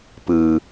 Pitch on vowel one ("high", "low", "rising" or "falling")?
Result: low